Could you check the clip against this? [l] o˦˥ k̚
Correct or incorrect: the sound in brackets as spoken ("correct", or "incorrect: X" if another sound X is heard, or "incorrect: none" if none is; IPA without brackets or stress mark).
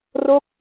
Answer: incorrect: r